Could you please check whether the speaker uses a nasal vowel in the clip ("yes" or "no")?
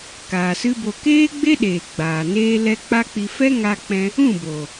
yes